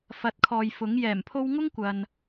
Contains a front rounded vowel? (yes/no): no